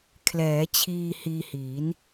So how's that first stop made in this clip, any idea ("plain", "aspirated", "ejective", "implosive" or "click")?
aspirated